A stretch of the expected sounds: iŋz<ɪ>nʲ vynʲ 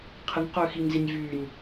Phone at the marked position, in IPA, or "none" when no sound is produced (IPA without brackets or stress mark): i